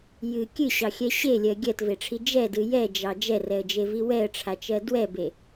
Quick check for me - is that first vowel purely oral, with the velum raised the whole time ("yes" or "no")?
yes